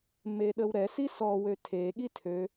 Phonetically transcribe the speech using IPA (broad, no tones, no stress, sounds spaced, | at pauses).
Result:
m e ɗ ə w ɾ ɛ s i s ɔ w ø tʰ e ɠ i tʰ ø